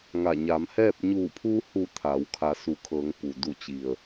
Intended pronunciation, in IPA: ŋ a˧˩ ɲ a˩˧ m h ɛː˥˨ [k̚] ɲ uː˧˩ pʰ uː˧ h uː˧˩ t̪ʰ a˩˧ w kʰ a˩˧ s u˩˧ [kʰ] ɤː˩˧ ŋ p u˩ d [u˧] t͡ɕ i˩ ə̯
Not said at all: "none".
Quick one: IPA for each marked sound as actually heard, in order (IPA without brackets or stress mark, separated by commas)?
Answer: p̚, kʰ, u˧˩